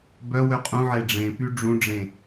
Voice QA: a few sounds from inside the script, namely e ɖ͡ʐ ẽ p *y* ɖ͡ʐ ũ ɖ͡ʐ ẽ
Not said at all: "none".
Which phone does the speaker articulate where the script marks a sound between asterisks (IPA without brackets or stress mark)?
y